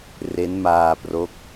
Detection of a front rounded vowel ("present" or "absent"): absent